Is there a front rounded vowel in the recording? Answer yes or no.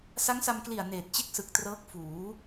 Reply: no